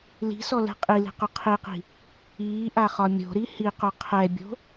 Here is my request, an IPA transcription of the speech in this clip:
li̤sɔlɛ̤ qʼili̤qʊ qʰiqi̤ | iːʔaχɒ mʲo̤ɾi hiqo qʰɛbʲo̤

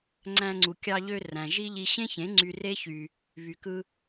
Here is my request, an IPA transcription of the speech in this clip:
ŋ͡ǀæ̃˧ŋ͡ǀu˨kʲɑ˧ʎø˧ ræ̃˨ʒi˦ʎi˧ ɕẽ˦çẽ˨˦ ŋ͡ǀy˧re˦çy˨ | βy˨kɯ˧

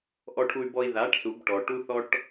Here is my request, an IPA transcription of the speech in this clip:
ʔɔ˧ʈʰu˧y̯bɔ˧i̯ ða˨˦ʈ su˨˦bʈɔ˨ ʈu˦θɔ˦ʈ

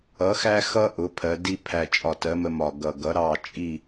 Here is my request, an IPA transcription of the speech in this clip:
ʌ˩˧xæ˧xʌ˧ ʔʊ˩˧pʰɜ˩˧ di˧pʰæ˨˩ t͡ʃʼɒ˨˩tɜ˩˧ mə˧mɒ˨˩ ɡʌ˨˩ɡʌ˩˥ɾɑ˥˧ t͡ʃʼi˥˧

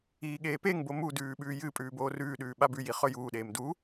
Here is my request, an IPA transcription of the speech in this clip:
iːɠeːpeŋbo mudʉː ɓʉːjɨpʼʉː boːrʉːɗʉː ɓabʉji χɵjuːɗeːm du

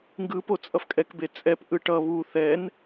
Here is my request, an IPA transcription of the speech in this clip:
ŋɡɯpo t͡sʼʌfkʼɛkbe t͡sʼɛpʔɯ ʈʌ βu θɛn

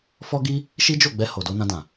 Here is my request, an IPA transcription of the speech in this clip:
fɔ˦ɡi˦ | ʃi˦d͡ʒo˦˨ɡ͡bɛ˧ ho˨do˧nã˧dã˨

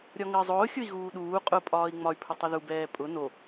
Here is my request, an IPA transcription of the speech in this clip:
ɾʲɒŋəːzˤʊː xʲʊi̯ɣuːɗuː qʼʊ pʼɒːi̯ŋ͡mɒy̯ pʰʊtˤəðu bɛːpʼʊ no

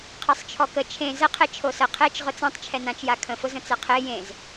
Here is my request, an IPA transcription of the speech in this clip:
qʰɛsˤt͡ʃʰɔkə t͡ʃʰẽ zəqʰe t͡ʃʰosə qʰet͡ʃ ʁʊt͡sẽtˤt͡ʃʰɛ nãt͡ʃja kʰə̃fʊzə̃ t͡sɛqʰe jẽz

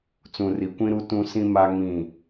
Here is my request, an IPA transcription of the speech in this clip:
t͡sũ˨ri˨kʷĩ˦ɾu˦ tũ˦ sĩ˦ ma˦ ŋĩ˦˨

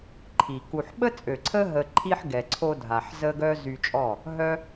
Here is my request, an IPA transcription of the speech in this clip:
ǃʰi˨ku˧ħ ɓə˦t͡sʼø˨ǀʰə˦ ɦə˧ǃʰi˦ħɡɛ˨ ǀʰo˧ dʱa˨ħzə˦ɡœ˦ zy˧t͡ʃʼɔ˦˨ | ɦœ˦

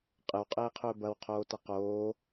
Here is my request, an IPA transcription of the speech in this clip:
qʼɨwqʼeːqʰɵː bɐwqʰoːtɐ qoː

